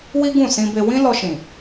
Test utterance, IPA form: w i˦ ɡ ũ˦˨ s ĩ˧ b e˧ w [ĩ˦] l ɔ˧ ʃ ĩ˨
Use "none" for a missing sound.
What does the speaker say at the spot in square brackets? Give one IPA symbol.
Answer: ĩ˦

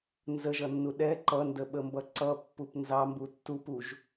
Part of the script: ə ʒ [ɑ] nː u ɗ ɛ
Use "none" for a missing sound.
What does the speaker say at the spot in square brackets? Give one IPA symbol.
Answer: ʌ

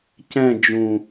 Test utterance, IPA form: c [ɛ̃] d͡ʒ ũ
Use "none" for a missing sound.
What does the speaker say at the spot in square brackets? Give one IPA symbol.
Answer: ɛ̃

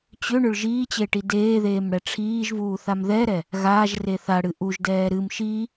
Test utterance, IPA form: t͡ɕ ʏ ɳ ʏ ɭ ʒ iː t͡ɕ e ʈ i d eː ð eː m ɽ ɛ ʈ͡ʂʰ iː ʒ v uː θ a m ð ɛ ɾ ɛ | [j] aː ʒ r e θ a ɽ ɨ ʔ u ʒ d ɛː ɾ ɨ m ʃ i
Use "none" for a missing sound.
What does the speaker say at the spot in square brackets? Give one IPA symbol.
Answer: ɣ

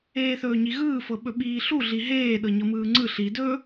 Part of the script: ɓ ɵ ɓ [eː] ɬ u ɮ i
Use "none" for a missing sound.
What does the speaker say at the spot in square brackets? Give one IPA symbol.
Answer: iː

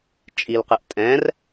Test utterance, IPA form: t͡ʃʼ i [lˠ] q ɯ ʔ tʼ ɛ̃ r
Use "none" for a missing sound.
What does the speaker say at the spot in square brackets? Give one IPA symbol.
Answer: l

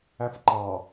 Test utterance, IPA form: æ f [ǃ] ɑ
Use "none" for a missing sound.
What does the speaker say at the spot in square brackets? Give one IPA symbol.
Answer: ǃ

